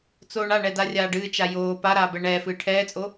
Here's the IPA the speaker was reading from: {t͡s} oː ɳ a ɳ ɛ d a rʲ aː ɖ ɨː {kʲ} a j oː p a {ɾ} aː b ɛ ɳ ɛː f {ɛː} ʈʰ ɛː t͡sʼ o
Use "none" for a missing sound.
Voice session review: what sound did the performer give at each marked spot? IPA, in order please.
t͡s, t͡ʃ, ɾ, ɨː

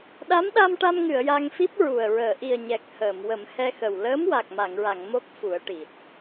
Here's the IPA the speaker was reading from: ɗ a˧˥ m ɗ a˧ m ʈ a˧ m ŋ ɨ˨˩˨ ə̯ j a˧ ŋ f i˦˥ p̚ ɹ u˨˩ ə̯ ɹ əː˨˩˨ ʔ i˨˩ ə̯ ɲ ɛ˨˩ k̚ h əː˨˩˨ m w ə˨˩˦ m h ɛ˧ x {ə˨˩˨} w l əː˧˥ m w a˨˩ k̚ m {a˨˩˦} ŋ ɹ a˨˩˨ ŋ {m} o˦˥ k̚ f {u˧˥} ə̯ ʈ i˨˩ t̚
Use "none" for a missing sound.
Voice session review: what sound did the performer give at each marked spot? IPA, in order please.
ə˨˩, a˨˩˨, m, u˨˩˦

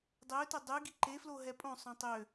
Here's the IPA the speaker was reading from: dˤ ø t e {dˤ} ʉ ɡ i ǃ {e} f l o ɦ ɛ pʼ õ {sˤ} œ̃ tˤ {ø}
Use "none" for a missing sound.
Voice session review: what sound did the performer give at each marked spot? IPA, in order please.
dˤ, e, sˤ, ø

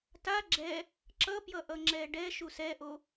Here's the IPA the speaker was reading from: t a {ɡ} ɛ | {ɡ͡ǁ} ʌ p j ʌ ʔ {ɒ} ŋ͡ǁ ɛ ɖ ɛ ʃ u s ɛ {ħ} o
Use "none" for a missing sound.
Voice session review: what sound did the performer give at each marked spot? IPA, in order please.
ɡ͡ǁ, ǁ, ʌ, ʔ

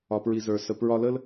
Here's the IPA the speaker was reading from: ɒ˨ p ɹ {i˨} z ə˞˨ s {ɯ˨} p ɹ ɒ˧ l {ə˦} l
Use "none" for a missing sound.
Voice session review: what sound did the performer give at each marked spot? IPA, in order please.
i˨, ə˨, ə˦

